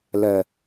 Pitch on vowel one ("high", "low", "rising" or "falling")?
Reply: low